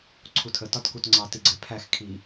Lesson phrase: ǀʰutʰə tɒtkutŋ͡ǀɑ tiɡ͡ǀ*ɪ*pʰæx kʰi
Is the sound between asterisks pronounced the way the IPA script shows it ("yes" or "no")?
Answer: no